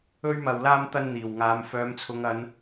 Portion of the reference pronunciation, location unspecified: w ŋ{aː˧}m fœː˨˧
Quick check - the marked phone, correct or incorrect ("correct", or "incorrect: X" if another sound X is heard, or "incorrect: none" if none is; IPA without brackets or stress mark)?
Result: incorrect: aː˨˧